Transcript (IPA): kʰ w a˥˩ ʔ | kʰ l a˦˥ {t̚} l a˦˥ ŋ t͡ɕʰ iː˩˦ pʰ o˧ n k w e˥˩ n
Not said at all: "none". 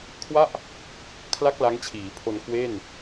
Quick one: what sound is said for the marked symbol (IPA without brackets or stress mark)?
k̚